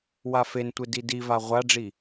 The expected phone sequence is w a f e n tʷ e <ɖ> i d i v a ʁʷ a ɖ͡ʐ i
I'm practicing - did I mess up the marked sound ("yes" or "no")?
yes